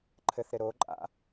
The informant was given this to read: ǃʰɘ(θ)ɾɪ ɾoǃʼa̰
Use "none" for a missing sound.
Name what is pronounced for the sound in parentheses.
θ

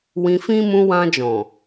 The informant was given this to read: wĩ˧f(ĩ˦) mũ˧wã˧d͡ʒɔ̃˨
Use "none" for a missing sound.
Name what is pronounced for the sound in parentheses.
ĩ˦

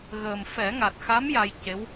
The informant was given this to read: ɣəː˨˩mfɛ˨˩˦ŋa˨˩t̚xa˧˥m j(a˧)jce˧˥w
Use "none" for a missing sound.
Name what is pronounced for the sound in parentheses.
a˧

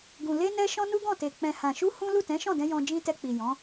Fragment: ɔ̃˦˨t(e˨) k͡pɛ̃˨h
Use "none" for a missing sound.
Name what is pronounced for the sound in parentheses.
e˨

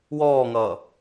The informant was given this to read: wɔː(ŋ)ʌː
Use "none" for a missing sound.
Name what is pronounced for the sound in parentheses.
ŋ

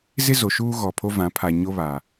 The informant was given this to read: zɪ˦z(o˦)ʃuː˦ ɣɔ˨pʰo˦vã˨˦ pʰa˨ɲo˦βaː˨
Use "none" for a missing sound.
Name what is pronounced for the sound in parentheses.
o˨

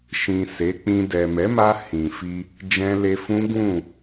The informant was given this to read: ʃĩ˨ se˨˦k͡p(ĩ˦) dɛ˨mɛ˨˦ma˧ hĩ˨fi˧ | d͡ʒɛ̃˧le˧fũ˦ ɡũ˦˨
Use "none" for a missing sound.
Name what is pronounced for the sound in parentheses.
ĩ˧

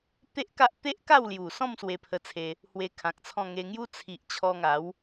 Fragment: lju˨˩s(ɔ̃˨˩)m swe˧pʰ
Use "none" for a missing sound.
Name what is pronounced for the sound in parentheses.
ɔ̃˥˧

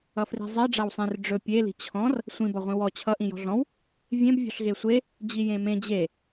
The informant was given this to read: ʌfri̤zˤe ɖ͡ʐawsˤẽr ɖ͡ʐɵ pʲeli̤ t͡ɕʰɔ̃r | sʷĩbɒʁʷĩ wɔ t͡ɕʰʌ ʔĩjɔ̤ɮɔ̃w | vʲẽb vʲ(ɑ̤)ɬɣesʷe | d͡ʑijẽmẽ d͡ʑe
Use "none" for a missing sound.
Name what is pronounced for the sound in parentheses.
ɔ̤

